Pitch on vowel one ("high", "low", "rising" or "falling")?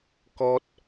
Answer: high